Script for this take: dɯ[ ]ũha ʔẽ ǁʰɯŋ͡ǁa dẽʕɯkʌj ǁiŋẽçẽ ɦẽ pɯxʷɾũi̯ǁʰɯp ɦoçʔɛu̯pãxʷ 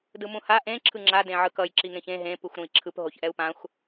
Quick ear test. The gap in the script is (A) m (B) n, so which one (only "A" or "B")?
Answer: A